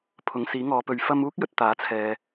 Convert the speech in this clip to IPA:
pʰʊ˨˥ŋsiː˨˥ ŋɔː˨˧pɵ˨ɥ fɐ˧muː˥k̚jɵ˨t̚ t̪aː˨˥t͡sʰɛː˨

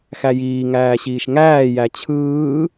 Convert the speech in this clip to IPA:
xæjiː ŋæːɕiːʃŋæː jæt͡ɕʰɯː

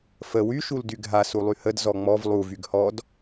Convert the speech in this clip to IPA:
fə wy ʃuldyɡʱa sulˠyhəd zɔŋ͡mɔv lˠu vyɡhɔd

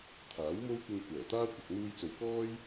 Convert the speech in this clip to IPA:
t̪ʰaː˨˥wmo˥wkʷɪ˧ŋ kʷɛː˨˩t̪aː˥ kʷɐ˨k̚n̪uː˧jt͡so˨wkɔː˥j

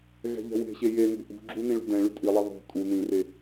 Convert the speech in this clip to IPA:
ɣɛ̤ʎɛ̤we̤ɕe jenṳ ʔṳɡ͡ǁu nĩɭṳdɛ̃ɭy tʼilˠe ðˤṳ tʼu nĩre

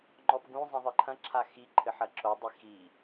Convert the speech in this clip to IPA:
ŋ͡ǃɔpɡũzˤĩ ðˤɨǃʰɐ̃ǁʰa xi ǃʰɘħɐǁodˤi xi

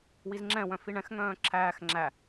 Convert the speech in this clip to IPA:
wizŋ͡ǁɛ̃wœ̃ fiɳɛ̃xŋœ̃ː ǁʰæːx ŋ͡ǁæ

